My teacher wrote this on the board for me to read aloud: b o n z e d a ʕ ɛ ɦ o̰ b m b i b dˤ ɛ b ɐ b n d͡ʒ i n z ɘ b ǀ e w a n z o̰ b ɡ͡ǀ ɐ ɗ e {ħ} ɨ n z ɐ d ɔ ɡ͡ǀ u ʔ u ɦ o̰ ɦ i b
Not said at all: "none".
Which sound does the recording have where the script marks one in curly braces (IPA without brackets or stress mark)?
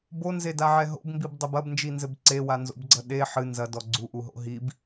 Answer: ħ